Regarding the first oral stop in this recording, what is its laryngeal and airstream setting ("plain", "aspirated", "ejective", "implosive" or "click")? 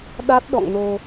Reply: implosive